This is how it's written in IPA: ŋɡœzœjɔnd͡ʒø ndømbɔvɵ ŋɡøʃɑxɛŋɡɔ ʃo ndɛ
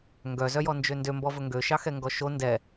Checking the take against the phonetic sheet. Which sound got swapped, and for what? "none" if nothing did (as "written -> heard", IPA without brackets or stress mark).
none